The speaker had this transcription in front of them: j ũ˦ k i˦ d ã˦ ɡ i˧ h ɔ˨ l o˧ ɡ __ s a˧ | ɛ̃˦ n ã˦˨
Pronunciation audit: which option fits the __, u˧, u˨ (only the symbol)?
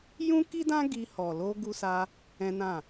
u˧